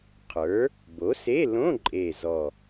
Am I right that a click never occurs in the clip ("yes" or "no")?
no